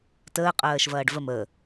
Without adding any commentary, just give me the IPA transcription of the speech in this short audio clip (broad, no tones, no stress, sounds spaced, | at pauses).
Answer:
t əː qʼ ɜː ʃ v ɐː ɖ v ə m ə